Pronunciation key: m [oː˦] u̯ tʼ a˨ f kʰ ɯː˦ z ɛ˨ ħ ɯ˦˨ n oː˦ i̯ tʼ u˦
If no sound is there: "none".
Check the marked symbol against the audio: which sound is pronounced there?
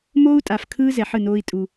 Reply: oː˦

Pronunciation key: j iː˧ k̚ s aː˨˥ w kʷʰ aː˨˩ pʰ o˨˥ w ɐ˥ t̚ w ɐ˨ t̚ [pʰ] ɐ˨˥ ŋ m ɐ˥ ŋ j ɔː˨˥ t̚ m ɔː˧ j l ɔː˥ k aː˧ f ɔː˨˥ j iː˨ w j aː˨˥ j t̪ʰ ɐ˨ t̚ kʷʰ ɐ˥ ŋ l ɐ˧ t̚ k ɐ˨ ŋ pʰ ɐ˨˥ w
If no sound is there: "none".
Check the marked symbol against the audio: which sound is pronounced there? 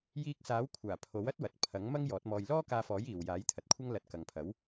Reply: pʰ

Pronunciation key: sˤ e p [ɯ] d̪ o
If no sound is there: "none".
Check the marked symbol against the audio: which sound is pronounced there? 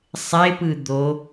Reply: ɯ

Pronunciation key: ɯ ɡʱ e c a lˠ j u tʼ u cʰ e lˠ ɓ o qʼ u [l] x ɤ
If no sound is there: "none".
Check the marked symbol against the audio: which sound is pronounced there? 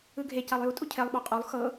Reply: lˠ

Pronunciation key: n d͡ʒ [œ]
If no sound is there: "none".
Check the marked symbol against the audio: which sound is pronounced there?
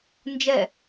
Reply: ɛ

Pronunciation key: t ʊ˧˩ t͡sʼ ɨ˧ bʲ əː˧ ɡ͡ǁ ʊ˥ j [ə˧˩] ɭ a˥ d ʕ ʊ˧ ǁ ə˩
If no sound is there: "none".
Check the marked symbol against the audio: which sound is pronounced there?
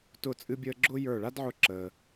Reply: ə˞˧˩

